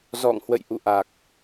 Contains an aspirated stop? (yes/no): no